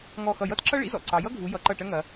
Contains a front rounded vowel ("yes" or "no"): no